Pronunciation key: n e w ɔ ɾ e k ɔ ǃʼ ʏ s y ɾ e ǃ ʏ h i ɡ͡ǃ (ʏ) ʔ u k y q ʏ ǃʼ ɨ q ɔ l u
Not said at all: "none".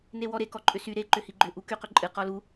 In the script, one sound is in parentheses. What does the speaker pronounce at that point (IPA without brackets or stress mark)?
ʏ